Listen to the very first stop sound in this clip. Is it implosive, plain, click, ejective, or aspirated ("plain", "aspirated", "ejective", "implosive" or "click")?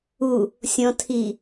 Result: aspirated